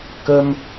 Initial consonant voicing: voiceless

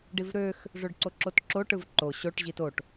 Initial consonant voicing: voiced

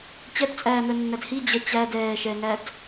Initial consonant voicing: voiceless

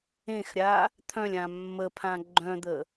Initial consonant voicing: voiceless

